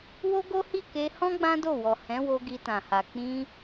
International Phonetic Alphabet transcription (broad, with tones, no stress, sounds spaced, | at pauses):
w o˦ ɡ o˦ h i˦˨ k e˧ h ɔ̃˦ ɡ͡b ã˦ d o˦˨ w ɔ˨ h ɛ̃˨˦ w o˧ ɡ i˧ t ã˨ h a˨ k͡p ĩ˧